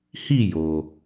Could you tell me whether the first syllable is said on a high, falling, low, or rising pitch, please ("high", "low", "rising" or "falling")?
falling